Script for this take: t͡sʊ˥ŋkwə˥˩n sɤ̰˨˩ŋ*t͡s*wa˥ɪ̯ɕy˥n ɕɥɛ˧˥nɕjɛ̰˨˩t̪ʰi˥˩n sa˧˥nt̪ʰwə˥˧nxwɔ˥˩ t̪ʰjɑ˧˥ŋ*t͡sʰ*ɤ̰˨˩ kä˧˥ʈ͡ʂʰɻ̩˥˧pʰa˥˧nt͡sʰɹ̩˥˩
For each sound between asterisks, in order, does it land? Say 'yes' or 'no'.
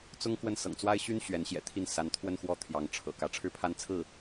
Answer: yes, no

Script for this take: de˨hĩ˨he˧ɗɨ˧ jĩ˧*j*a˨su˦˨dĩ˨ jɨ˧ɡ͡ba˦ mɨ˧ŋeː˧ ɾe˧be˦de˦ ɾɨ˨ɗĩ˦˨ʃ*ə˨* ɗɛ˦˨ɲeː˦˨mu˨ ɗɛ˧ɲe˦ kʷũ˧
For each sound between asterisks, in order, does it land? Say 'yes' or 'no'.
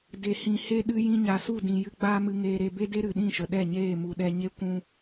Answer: no, yes

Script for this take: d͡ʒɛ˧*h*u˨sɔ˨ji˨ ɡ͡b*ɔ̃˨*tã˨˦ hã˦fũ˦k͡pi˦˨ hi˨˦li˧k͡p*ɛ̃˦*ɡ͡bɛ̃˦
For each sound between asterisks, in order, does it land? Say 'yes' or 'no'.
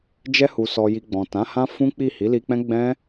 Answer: yes, yes, yes

